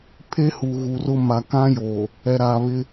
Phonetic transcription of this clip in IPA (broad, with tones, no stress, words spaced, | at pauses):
pʰe˦hu˨ ɣu˨rʊ˦ ma˨kã˦joː˨ | ɛ˨ɾaː˨βɪ˦